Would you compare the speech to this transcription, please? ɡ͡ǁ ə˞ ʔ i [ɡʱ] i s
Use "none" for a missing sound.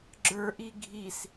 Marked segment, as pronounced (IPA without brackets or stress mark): ɡʱ